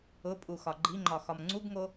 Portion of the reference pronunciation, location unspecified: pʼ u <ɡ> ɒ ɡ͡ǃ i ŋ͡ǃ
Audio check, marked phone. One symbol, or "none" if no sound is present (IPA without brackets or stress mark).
x